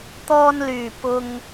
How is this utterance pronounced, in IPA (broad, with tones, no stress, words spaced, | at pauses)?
t̪ɔː˧nlyː˨˩ pʊ˨ŋ